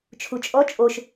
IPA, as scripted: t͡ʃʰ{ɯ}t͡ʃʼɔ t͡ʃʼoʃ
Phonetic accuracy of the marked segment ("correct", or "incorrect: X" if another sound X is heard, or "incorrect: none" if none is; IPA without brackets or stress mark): incorrect: u